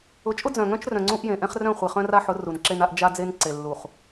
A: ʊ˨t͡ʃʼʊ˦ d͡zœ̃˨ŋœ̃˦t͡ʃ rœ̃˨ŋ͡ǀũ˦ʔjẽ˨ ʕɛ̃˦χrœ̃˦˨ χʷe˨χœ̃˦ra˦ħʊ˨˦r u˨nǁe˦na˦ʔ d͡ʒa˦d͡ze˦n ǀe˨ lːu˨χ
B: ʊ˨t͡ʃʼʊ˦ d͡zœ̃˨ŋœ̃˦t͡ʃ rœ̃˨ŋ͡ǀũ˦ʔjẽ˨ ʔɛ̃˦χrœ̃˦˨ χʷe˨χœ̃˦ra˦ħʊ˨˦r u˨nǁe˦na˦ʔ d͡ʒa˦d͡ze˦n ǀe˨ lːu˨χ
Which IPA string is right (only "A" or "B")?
B